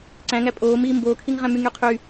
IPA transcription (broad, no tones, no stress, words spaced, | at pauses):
ǀæ̃ ŋæpʼoːmiː mboːkʰiŋʁæ̃ myŋyqʰy